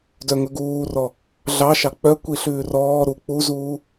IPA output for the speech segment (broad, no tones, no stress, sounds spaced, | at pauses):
d œ ŋ ɵ ɡ uː r ɔ | ɮ ɑ ʃ ɑ k͡p œ kʷ i ɬ ʉː r ɔː ɾ u k͡p u z uː